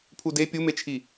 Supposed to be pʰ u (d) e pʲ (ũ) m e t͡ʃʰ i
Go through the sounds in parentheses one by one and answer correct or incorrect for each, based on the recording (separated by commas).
correct, incorrect